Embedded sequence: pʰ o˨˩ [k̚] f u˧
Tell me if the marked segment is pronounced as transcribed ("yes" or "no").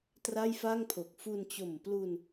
yes